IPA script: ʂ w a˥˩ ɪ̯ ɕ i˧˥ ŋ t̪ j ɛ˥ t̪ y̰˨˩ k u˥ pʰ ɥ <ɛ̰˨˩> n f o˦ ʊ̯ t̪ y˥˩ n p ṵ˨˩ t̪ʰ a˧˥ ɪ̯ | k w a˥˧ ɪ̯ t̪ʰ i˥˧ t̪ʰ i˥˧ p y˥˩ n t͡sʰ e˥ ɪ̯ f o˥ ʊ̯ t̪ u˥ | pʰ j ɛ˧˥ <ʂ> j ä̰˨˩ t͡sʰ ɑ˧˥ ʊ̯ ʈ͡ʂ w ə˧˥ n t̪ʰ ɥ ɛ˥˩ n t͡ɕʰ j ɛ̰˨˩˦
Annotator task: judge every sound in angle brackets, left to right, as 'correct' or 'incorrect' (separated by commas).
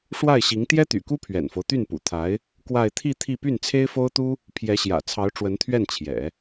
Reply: correct, incorrect